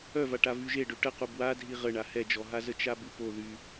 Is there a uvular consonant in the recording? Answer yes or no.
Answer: yes